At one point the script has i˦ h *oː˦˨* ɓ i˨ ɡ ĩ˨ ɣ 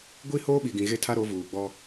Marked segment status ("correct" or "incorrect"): incorrect